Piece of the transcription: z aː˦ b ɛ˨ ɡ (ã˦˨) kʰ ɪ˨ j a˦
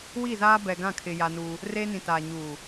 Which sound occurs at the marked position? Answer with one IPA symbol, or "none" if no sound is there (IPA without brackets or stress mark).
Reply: ã˦˨